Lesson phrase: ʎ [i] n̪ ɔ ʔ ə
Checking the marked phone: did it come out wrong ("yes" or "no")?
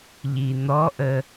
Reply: no